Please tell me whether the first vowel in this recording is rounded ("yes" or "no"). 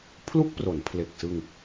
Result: yes